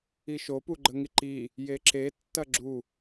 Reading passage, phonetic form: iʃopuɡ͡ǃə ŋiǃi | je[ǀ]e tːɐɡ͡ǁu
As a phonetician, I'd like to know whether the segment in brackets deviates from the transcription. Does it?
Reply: yes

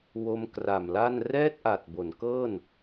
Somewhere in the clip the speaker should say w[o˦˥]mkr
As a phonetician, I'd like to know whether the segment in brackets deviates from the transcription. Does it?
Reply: no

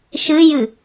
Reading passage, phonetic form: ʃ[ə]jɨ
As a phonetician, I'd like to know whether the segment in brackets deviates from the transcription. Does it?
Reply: yes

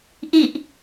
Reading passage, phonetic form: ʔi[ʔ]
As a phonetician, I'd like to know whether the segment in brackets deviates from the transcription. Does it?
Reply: no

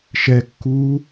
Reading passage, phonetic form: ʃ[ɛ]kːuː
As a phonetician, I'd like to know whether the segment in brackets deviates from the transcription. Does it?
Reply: no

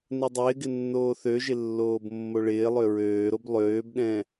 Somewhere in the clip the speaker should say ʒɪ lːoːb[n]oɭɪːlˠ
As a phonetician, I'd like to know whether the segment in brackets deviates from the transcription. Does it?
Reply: yes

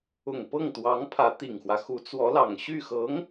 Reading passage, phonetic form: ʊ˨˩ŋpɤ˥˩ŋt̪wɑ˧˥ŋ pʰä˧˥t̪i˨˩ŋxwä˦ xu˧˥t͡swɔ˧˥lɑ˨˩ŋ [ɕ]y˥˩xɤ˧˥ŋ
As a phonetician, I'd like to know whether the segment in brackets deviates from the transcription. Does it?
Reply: no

